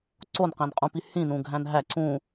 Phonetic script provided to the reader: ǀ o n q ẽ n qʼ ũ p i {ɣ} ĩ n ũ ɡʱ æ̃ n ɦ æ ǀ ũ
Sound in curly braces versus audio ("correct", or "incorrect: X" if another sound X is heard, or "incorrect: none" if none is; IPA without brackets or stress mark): incorrect: h